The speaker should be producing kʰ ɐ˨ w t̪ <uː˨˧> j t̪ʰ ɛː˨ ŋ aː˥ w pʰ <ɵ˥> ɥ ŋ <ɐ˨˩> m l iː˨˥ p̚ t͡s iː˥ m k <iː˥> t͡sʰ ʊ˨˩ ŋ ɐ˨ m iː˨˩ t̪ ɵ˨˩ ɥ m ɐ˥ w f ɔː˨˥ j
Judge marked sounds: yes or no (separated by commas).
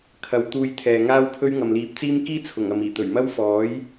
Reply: no, yes, no, yes